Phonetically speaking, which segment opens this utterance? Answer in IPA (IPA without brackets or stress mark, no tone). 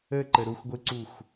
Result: ə